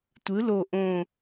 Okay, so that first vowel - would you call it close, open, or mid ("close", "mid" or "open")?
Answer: close